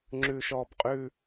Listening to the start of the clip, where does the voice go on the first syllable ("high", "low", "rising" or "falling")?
high